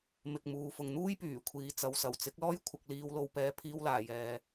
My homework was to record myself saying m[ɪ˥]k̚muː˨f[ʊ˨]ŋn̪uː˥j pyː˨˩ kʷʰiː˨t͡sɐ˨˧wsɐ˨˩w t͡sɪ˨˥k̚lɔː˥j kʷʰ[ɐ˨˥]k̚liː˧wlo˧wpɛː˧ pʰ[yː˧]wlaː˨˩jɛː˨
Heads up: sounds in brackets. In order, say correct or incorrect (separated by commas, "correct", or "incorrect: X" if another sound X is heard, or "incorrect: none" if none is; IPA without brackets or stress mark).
incorrect: ɪ˨, correct, incorrect: ɐ˧, incorrect: iː˧